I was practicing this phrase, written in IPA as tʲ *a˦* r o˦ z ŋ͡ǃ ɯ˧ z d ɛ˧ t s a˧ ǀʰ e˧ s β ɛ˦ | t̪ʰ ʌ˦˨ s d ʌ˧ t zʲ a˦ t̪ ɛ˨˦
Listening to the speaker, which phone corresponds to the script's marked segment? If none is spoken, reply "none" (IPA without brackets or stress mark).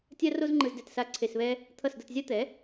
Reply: a˦